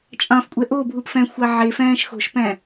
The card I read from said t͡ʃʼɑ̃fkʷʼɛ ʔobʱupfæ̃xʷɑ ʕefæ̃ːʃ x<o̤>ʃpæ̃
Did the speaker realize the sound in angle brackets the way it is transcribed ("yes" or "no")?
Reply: yes